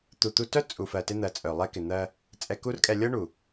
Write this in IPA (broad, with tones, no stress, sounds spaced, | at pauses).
t̪ u˨ t̪ u˧ t œ˦ t͡sʼ u˨ f ɜ˨ t ɪ˧ n̪ ɜ˨ t͡sʼ œ˨ lˠ ɛ˧ k ɪ˨ n̪ ɜ˧ | t͡sʼ ɛ˧ k u˦ r kʼ ɛ˧ lʲ ɤ˦ ɳ u˨